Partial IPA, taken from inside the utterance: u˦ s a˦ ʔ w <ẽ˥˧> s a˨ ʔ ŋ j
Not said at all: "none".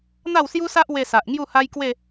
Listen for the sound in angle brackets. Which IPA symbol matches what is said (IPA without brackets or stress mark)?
e˥˧